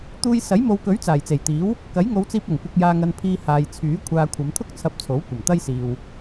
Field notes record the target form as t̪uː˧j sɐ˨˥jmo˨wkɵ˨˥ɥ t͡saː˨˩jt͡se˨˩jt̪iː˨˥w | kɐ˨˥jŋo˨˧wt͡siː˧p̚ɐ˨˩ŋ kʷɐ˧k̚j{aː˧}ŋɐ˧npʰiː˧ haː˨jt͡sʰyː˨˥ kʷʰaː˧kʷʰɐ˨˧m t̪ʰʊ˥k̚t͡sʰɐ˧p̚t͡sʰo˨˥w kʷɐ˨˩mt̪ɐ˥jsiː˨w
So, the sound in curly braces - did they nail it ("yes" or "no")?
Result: yes